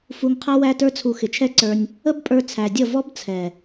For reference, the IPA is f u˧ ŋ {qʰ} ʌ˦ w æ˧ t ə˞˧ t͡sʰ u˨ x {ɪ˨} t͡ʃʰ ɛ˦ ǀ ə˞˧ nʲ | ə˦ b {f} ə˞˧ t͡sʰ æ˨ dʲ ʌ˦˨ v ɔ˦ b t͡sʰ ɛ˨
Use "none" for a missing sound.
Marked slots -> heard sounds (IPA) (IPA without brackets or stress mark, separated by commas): qʰ, ɪ˨, pʼ